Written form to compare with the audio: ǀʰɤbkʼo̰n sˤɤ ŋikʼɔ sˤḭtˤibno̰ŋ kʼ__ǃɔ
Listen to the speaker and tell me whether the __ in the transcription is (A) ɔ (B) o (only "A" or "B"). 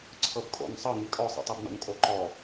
B